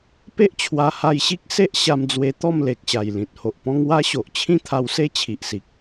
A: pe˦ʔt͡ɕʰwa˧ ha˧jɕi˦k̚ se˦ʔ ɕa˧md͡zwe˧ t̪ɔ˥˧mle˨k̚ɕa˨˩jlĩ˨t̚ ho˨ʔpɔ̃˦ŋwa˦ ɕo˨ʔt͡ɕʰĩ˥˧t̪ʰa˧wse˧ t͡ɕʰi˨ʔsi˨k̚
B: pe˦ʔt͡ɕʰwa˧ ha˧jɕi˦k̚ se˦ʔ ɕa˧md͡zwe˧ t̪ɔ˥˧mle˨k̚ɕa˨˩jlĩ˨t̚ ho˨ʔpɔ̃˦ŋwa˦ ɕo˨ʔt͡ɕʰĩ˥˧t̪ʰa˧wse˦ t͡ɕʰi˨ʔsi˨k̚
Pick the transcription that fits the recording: B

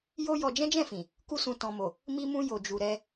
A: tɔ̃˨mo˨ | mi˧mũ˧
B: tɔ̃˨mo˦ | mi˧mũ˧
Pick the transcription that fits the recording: A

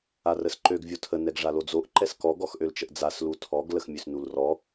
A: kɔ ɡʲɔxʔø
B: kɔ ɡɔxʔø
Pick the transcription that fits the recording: B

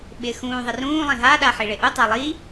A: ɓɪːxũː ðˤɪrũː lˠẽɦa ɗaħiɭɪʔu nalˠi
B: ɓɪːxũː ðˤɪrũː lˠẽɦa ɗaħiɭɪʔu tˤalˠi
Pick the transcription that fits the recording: B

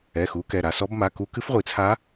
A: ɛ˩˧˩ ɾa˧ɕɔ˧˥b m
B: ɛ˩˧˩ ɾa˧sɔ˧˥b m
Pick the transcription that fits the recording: B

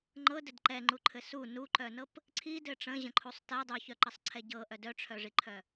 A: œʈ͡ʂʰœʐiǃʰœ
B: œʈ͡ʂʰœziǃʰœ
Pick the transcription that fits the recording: A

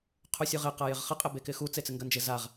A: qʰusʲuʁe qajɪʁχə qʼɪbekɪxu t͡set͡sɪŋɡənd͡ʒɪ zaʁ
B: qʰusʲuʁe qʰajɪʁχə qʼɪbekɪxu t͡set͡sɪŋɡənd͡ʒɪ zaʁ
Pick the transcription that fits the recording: A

